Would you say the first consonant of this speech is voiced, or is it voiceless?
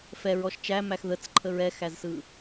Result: voiceless